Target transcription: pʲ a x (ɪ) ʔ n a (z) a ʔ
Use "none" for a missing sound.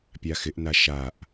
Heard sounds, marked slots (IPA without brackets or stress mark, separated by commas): ɪ, ʃ